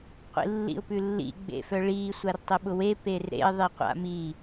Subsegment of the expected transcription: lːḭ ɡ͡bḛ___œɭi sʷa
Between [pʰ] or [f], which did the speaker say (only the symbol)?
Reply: f